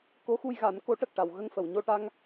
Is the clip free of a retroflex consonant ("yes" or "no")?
no